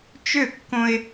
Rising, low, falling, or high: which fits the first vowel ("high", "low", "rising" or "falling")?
falling